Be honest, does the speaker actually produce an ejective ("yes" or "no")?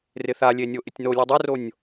no